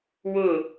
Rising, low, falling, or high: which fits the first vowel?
falling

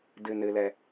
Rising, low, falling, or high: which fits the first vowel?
low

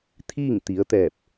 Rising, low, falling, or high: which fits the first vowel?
falling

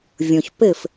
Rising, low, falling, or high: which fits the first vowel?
low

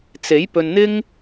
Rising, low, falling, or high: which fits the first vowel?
rising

